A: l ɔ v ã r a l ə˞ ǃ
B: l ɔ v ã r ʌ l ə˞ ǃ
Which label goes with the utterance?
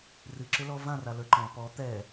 A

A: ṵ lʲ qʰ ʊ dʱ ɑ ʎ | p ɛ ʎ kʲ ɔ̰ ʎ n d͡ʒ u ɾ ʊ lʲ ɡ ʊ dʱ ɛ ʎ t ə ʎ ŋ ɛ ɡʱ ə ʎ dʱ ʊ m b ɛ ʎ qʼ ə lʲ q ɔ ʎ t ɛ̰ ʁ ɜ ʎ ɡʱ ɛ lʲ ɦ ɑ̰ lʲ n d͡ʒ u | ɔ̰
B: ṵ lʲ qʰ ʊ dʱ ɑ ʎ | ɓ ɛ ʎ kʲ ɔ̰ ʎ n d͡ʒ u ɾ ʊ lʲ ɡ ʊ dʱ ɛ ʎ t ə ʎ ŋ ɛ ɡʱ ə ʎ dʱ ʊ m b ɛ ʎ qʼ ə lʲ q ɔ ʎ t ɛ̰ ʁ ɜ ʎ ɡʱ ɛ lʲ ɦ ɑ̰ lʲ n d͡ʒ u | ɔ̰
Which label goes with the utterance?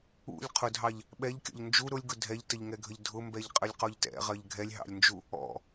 B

